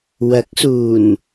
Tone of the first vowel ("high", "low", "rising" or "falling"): rising